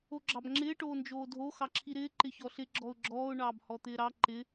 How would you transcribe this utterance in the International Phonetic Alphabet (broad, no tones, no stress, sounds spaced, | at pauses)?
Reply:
o ɡ͡ǁ ɑ b ŋ͡ǁ ɪː ʈ oː n d͡ʒ oː dʱ o x ɑ ǁʰ i ɾ ɪː ǃ ɪ ç ɔ ɬ ɪ ɡ͡ǁ ɔ ʊ̯ ɡ͡ǁ ɔː ʊ̯ ɳ ɑː b h ɔ t̪ ɪː ɾ ɑ ǃ ɪ